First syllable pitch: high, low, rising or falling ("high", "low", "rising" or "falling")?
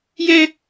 high